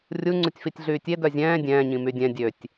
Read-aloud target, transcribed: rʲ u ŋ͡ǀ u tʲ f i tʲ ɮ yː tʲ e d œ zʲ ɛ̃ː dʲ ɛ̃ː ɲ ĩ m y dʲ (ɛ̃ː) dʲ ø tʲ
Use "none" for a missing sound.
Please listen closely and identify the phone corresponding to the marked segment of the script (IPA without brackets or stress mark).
ɛ̃